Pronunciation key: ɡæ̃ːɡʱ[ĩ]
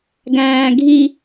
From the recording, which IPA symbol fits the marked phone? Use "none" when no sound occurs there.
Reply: i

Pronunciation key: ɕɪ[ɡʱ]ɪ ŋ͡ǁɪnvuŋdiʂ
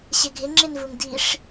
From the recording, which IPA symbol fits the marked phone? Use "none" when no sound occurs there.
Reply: ɡʱ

